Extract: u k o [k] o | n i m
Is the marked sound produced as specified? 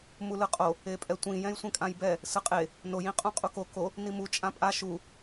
yes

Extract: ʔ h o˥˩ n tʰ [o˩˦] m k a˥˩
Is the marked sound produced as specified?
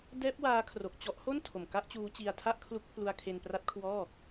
no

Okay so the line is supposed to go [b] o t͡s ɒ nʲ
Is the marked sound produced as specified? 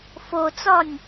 no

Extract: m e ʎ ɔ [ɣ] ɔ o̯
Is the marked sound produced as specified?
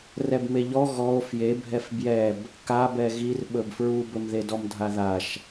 yes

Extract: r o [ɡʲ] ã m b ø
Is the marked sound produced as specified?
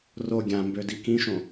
yes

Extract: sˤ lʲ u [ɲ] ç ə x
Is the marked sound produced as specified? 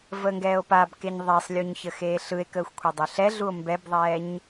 yes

